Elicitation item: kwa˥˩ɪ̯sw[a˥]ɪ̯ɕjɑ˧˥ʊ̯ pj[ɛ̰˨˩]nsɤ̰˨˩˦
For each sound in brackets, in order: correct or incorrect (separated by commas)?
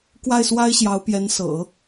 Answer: correct, incorrect